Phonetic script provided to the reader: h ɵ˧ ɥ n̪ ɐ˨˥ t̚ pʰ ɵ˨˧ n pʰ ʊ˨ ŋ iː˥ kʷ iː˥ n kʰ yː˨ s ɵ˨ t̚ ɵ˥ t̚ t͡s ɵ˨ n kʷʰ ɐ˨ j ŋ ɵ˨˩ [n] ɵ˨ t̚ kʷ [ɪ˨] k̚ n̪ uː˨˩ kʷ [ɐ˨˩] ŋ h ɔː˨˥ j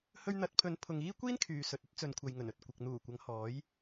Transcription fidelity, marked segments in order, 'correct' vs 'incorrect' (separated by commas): correct, correct, incorrect